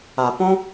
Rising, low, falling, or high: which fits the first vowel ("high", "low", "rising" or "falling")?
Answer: low